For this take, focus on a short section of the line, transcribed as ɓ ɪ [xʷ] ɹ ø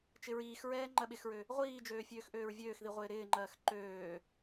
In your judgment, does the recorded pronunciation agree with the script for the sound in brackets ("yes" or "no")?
no